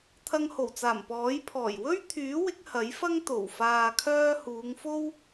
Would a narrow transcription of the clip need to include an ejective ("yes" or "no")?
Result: no